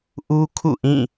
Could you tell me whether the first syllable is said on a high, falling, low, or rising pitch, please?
high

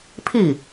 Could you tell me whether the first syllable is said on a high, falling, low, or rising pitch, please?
falling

